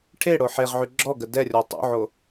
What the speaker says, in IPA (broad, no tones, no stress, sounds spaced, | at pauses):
ʈʰ e ɽ o ħ e ʁ ʕ y ɡ͡ǁ ɔ ɡ ə d ɛ rʲ ɔ tˤ ṵ ʕ o